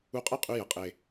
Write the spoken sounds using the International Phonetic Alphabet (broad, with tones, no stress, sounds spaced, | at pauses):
u˧ qʼ ɛ˦ qʼ ʉ˧ j ə˨ qʼ e˨